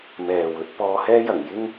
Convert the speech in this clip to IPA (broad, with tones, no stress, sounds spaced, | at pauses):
m ɛː˨ w ɵ˨˥ t̚ p ɔː˧ h ɛː˥ j ɐ˨˩ ŋ j ɪ˥ ŋ